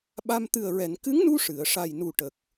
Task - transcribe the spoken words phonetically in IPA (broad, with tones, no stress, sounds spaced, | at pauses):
ɓ a˧ m t̪ ɨ˨˩ ə̯ ɹ ɛ˨˩˨ n k ɨ˧˥ ŋ n u˧ ʂ ɨ˨˩˨ ə̯ ʂ a˨˩ j n u˨˩ ʈ ə˨˩ k̚